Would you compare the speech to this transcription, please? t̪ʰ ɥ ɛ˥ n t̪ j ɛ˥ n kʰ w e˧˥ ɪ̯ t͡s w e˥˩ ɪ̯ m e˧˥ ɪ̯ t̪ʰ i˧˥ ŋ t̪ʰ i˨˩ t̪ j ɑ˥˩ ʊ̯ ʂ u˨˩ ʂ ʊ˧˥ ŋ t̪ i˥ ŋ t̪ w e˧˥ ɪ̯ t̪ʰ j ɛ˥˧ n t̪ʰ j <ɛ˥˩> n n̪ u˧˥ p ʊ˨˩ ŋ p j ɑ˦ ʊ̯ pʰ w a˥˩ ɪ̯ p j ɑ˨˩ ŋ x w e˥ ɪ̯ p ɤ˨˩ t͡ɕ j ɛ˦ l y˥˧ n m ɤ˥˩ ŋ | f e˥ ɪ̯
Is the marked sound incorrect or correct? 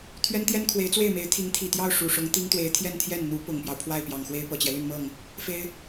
correct